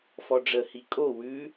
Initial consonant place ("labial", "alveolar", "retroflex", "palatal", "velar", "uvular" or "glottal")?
labial